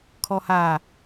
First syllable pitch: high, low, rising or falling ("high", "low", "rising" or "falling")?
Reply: low